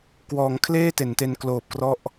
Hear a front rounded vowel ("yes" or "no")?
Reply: no